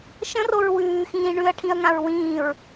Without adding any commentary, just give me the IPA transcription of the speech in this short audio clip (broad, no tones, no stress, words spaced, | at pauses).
ʃə̃roɹ wʉːxĩː ɳʉɐ̯ʈʰĩɐ̯ŋãɹ wĩːɹ